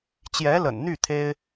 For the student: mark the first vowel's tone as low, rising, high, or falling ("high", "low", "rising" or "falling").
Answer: rising